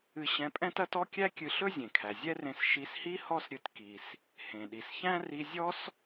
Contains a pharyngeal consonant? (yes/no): no